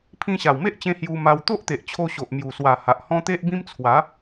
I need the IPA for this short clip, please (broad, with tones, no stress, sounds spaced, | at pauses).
pʰ ĩ˧ ɕ a˨˩ w m e˦ ʔ t͡ɕ ẽ˧ h j u˧ m a˧ w t̪ o˦ ʔ t̪ e˨ ʔ t͡ɕʰ o˧ ɕ o˨ ʔ m j u˨˩ s w a˨˩ h a˨ ʔ h ɔ̃˦ t̪ e˦ ʔ b ĩ˦ m t͡sʰ w a˨˦